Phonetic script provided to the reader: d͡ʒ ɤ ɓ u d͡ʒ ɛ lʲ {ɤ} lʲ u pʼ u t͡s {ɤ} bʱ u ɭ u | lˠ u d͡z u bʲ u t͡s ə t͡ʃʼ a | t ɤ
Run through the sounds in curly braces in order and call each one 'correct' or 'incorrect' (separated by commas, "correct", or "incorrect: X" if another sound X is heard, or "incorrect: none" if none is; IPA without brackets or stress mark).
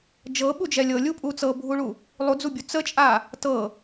correct, correct